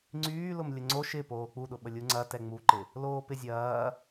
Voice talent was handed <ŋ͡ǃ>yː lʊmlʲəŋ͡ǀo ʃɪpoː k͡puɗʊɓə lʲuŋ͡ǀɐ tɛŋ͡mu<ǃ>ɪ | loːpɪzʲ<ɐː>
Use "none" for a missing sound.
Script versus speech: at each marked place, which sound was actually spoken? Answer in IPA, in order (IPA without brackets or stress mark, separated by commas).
ŋ͡ǀ, ǃ, ɐː